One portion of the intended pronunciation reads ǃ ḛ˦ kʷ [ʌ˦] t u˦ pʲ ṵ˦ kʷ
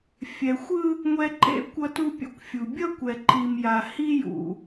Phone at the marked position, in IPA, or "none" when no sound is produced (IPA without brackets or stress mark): ʌ˦